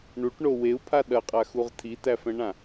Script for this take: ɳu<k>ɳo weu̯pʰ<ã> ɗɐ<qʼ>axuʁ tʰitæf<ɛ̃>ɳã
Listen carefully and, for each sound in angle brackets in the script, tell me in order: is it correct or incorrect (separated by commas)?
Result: incorrect, incorrect, correct, correct